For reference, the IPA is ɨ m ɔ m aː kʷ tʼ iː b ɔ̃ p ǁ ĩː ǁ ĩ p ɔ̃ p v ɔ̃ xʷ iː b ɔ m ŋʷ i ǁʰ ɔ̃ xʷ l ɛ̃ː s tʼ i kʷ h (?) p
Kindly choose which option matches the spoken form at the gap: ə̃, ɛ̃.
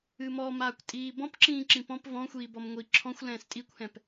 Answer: ɛ̃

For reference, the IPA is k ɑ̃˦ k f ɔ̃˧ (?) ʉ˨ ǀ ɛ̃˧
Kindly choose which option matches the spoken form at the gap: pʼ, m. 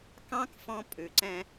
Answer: pʼ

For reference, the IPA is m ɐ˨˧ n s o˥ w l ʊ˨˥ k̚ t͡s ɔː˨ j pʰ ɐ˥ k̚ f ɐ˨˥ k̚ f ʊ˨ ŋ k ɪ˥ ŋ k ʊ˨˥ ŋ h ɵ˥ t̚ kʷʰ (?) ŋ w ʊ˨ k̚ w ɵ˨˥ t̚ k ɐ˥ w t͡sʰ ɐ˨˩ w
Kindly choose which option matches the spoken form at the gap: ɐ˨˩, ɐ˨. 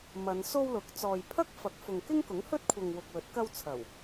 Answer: ɐ˨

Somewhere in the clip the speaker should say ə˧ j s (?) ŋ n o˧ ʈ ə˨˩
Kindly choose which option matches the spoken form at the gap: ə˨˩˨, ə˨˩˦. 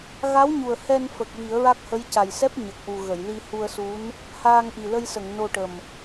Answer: ə˨˩˨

